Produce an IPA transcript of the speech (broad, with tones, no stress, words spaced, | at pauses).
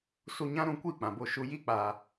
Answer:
su˧ɲã˦ɾũ˨˦kʷi˦˨ k͡pã˨bo˦˨ ʃu˧ ji˦k͡pa˧